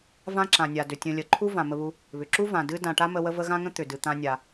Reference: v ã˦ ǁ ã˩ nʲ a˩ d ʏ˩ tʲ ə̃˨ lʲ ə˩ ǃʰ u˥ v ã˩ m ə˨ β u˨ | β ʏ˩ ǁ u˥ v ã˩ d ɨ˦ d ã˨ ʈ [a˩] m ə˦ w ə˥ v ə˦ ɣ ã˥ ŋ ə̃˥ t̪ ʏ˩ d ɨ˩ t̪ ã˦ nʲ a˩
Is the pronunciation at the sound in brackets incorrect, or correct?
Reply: incorrect: a˥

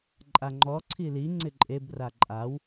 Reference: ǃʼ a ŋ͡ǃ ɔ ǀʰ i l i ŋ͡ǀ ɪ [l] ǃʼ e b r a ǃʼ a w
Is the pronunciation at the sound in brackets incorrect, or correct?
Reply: incorrect: none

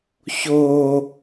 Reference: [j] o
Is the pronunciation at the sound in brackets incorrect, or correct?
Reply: incorrect: ç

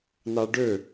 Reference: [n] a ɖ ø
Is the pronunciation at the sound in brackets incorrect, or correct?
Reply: correct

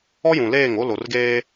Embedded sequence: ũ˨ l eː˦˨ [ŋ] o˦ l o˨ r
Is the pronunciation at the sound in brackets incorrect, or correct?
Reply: correct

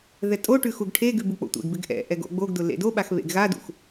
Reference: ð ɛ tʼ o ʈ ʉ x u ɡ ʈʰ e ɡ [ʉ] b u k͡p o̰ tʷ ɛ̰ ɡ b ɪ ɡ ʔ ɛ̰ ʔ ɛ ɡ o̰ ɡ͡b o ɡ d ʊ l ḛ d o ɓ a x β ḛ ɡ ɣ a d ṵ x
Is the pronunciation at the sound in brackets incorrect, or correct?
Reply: correct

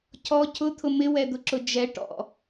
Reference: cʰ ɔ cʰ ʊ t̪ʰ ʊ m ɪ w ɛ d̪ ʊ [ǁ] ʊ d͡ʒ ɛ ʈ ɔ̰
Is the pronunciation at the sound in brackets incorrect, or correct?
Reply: correct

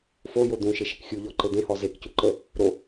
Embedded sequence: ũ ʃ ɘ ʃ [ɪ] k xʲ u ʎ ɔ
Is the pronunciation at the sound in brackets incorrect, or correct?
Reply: correct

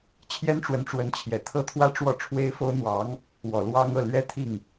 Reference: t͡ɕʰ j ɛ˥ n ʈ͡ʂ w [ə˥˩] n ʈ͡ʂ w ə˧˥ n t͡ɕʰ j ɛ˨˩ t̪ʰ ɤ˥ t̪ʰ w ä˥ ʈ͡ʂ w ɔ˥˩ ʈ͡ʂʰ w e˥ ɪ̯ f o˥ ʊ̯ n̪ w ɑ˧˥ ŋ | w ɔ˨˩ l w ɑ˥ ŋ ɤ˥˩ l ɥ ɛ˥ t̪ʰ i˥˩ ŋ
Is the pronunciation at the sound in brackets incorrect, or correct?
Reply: incorrect: ə˧˥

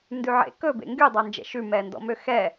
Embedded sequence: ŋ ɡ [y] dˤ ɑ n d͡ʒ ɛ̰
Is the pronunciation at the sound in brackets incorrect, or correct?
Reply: correct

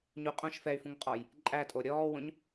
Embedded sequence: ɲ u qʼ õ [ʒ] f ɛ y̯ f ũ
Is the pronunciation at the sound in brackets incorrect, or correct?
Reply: incorrect: ʃ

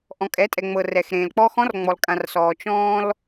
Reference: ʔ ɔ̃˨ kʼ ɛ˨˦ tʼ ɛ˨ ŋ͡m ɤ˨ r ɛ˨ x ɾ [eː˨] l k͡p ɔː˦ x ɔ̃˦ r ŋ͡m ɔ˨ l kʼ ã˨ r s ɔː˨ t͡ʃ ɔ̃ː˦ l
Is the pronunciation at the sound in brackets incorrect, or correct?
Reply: incorrect: ẽː˨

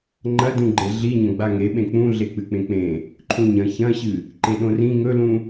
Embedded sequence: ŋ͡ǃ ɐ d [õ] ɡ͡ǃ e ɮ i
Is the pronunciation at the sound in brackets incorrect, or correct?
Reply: incorrect: ũ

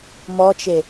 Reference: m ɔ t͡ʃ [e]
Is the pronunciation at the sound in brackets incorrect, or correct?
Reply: correct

